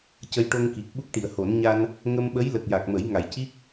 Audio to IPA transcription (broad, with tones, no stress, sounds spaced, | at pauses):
c ə˧ j ʈ o˧ ŋ k i˨˩ k̚ ɓ u˦˥ k̚ ʈ i˨˩˨ ə̯ h o˨˩˦ n ɲ a˧ n | ŋ ə˧ m ɓ ə˧˥ j l ə˨˩ k̚ j a˨˩ k̚ m ə˨˩˦ j ŋ a˨˩˨ j c i˦˥ k̚